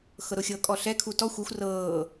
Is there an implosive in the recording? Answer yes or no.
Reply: no